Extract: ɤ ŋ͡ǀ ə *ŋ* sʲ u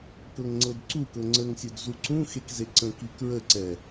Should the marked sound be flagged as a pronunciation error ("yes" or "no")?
no